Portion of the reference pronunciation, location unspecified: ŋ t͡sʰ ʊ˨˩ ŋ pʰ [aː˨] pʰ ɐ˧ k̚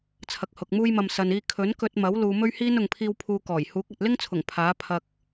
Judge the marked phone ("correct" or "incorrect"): incorrect